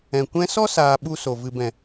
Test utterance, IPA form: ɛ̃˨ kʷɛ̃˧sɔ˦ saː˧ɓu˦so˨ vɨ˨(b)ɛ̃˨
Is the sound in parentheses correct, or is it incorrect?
correct